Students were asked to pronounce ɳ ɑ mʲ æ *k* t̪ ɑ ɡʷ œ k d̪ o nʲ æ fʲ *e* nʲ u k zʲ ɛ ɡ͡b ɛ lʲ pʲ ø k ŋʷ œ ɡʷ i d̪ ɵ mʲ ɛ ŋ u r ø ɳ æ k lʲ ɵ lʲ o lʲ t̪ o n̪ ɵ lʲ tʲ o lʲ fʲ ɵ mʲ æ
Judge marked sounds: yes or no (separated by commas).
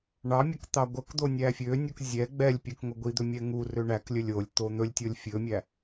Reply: yes, no